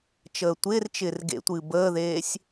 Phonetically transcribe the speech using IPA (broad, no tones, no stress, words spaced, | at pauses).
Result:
t͡ʃəːtʷɪːrt͡ʃɪːr ɡḛtʷɨː bəːðeːsʲ